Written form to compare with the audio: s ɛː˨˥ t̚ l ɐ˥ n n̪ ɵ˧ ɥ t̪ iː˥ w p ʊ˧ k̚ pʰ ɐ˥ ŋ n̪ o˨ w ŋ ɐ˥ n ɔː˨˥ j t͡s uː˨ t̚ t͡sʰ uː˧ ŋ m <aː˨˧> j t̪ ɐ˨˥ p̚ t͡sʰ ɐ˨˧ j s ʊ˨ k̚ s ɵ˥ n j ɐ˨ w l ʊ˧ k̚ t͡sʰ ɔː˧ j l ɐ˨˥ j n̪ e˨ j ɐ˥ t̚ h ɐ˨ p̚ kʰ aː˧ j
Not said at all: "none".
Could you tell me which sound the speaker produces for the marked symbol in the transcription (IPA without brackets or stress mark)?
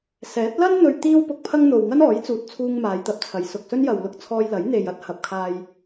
aː˨˧